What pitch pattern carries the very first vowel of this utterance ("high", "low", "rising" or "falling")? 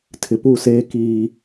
low